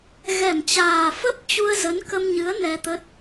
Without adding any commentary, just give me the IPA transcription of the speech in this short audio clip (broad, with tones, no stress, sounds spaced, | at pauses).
ɣ ɛ˧˩ m t͡ɕ aː˨˩ f ə˦˥ p̚ t͡ɕ u˧ ə̯ z ə˨˦ n k ə˧ m ɲ ɨ˨˦ ə̯ n ɛ˧ t̪ ə˦˥ t̚